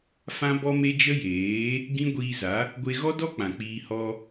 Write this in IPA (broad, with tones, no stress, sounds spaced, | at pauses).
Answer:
f ã˦ b ɔ˦ m e˦ d͡ʒ ə˦ j eː˨˦ | ɡ ĩ˦ ɡʷ iː˧ z a˨˦ | ɡʷ e˧ ɣ ɔ˦ d ɔ˦ k͡p ã˨ k͡p iː˧ h ɔ˧